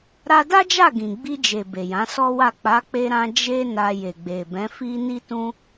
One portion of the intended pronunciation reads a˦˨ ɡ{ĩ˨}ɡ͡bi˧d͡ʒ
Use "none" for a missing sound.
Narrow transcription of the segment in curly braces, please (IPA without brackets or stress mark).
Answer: ĩ˨